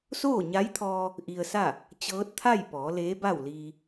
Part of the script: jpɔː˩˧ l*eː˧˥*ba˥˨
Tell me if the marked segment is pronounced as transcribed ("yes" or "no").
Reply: yes